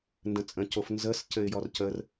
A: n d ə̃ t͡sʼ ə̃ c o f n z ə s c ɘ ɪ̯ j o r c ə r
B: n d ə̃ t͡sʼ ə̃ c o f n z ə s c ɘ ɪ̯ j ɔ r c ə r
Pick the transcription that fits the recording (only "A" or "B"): B